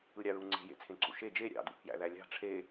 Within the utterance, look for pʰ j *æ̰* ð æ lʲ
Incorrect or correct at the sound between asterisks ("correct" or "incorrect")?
correct